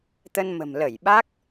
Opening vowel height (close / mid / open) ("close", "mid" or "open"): mid